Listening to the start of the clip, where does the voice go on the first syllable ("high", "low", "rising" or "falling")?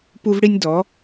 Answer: high